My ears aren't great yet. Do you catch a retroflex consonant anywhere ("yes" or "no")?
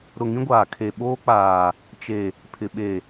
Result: no